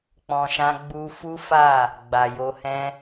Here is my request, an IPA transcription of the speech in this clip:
k͡p ɔ̃˨ ʃ ã˧ ɡ͡b u˧ f u˦ f a˦˨ | ɡ͡b a˨ j o˧ h ɛ̃˦

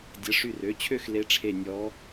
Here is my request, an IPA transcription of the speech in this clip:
dʲ ə˩˧˩ ʂ y˧˩ r ø˩˧˩ t͡ɕʰ ø˥˨ x l e˧˥ ʈ͡ʂʰ e˧˩ nʲ ɔ˧˥

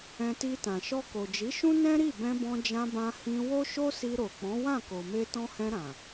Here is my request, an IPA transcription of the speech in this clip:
ɛ̃˧ t i˧ t ã˨ ʃ ɔ˧ k o˨ d͡ʒ i˨˦ ʃ ũ˦ n ɛ̃˦ ɾ i˦˨ b ɛ̃˧ b ɔ̃˧ d͡ʒ ã˧ b ã˧ h ĩ˧ w o˦ ʃ o˦ s i˧ ɾ o˨ k͡p ɔ̃˨˦ w ã˦˨ k o˨ m e˧ t ɔ̃˧ h ɛ̃˧ ɾ ã˨

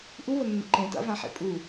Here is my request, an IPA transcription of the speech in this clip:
ʔ u β ə nː ə̰ ǃ ẽ t a̰ v ã ħ ḛ pʼ u

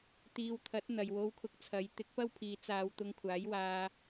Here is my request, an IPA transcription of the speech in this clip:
t̪ iː˧ w t̪ʰ ɐ˨˥ t̚ n̪ ɐ˨ j w o˧ w kʰ ʊ˧ k̚ t͡sʰ ɐ˨˧ j t̪ ɪ˨˥ k̚ p ɐ˥ w pʰ iː˨˧ t͡s aː˧ w t̪ ʊ˧ ŋ kʷʰ aː˨˥ j w aː˧

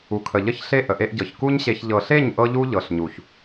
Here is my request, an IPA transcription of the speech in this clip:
u˨ kʰ ə˨ ʎ ə˦ ç ɬ e˦ ʔ ə˨ ʔ e˧ ʔ ɟ ɤ˨ ç k u˦ ɲ ɕ e˧ ç ʎ ɤ˨ ɬ e˦˨ ɲ ʔ ɤ˦ ʎ u˦ ʎ ɤ˨ ɬ ɲ u˨ ç

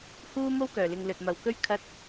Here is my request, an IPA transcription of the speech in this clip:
h uː˥ m o˥ w k œː˨˩ l ɪ˨ ŋ l ɵ˨ t̚ m ɐ˨ w k ɵ˥ ɥ kʰ ɐ˧ t̚

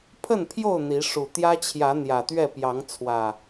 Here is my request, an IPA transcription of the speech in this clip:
pʰ ə˥˨ n pʰ j o˥˨ ʊ̯ n̪ i˨˦ ʂ u˨˩ t̪ j ä˦ t͡ɕʰ j ä˨˦ n̪ j ä˨˩ t̪ ɥ ɛ˥˨ p j ɑ˨˦ ŋ t͡sʰ w ä˨˩

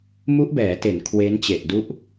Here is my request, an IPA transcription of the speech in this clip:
m u˦˥ ʔ b ɛː˩˦ t e˩˦ n kʰ w e˦˥ n t͡ɕ e˨˩ ʔ d u˦˥ ʔ

